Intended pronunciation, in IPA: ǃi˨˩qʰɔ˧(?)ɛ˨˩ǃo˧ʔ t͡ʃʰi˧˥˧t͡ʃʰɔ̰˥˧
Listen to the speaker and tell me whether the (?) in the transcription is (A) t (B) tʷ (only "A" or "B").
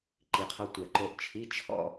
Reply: B